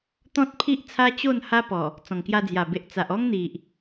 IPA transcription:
t̪ ɔ̃˦ t̚ pʰ i˦ ʔ t͡sʰ a˦ t͡ɕ o˥˧ n h a˦ p ɔ˨˩ | t͡s ɔ̃˨˩ ŋ k j a˧ d͡z j a˨˩ b e˨ ʔ t͡s a˨ ʔ ɔ˦ ŋ n̪ i˨ ʔ

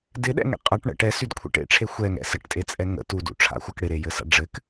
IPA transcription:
d ɪ ɗ ɛ̰ ŋ ḛ qʼ a ʈ ɳ ə̰ ʈ ɛ s y d kʷʰ ḛ ʈ ḛ ʈ͡ʂʰ e xʷ ɛ ŋ ɛ̰ s ɘ ʈ tʼ e t͡sʼ ɛ ŋ ə̰ t u d ṵ ʈ͡ʂʰ a̰ xʷ a k ɽ ɪ ɾ e j ɘ s a̰ ɖ͡ʐ ɘ k

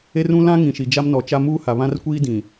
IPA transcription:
e˦ r ũ˦ l ã˦ ŋ ĩ˨ ʃ i˨ d͡ʒ a˦ m n ɔ˨ t͡ʃ a˦ m uː˦ h a˨ β ã˦ r kʷ iː˦ d ĩ˨

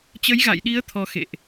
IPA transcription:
t͡ɕ ə˨˦ j ɣ a̰˧˨ j ɗ i˨˦ ə̯ t̪ʰ ɔ˨˦ x ḛ˧˨ ʔ

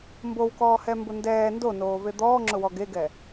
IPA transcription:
m b o w k ɔː h ɛ m b ʊ n d ɛː n d o n oː v e d̪ ɔː ŋ͡ǁ ʊ w ɔ ɡ e ɡ ɛ

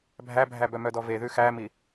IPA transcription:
bʱ æ bʱ æ b œ m œ d ɔ v e ð ʉ x æ m i

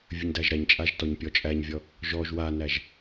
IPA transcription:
vʲ ə ɲ d æ ʒ ɾ æ ɲ t͡ʃʼ a ʒ t ɔ ɲ pʲ ɔ t͡ʃʼ æ ɲ vʲ ɔ | ʒ ɔ ʒ w a n æ ʒ

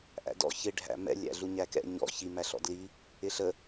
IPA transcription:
ʔ æ̰ d ɔ̰ ç ɪ ɖʱ æ̰ m ɛ̰ lʲ æ̰ ɮ u ɲ æ k ɛ̰ ɲ ɔ̰ ç i m æ ɬ ɔ̰ d l i | ɪ ɬ ə

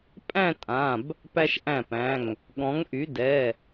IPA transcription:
pʼ æ̃˥˧ tʼ ã˩˧˩ b | p æ˧ ʃ ʔ æ̃˧˩ p æ̃˩˧˩ ŋ | ɠ ɔ̃˩˧ ŋ ʔ y˩˧ d ɛ˩˧˩

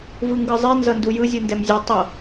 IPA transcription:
v ɯ ŋ ɡ ɯ zˤ i n z ʌ n d u j ɯ zʲ u n d ɛ m zʲ u tˤ ʌ

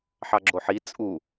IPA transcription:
ħ ɑ ɡ͡ǁ o ħ i t͡sʼ u

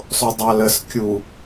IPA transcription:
sˤ o dˤ ɑ l ə s kʲ u

